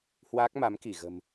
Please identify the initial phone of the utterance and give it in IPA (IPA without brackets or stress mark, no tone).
h